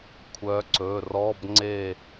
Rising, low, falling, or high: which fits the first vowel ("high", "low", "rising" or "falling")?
rising